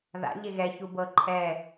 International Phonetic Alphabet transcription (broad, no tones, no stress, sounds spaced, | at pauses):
ð a̰ ʎ e ɣ ɛ ç u b ɤ ǃʰ ɛ